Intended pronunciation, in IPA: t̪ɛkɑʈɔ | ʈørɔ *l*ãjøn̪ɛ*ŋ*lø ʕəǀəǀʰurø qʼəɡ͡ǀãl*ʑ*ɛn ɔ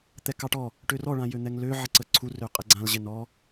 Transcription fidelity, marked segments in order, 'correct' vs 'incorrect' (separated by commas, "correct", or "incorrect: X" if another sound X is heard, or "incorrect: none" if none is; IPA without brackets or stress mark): incorrect: ɭ, correct, correct